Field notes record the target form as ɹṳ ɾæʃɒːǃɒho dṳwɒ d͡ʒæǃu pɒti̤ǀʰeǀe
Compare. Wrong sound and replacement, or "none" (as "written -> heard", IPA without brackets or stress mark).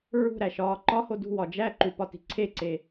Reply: none